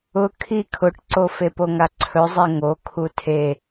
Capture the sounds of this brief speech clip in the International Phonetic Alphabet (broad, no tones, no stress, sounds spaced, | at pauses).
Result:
ʊ kʰ i kʰ ʊ ʈ ǀ o f e p o ŋ a ǀʰ ɵ zˤ e ŋ o kʰ u tʰ e